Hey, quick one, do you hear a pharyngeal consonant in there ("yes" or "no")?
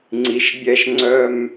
no